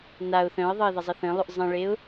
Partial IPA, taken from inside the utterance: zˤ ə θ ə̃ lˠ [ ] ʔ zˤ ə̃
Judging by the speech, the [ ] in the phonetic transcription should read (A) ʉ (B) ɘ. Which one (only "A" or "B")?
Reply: A